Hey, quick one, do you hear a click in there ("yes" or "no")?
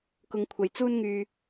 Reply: no